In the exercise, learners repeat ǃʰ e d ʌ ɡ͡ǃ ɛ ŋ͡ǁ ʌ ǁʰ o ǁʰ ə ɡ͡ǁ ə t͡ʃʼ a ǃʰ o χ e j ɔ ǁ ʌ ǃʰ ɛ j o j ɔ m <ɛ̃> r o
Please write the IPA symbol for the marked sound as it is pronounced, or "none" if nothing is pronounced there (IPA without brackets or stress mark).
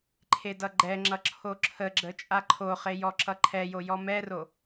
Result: ɛ